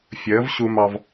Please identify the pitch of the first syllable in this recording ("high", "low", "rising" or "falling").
rising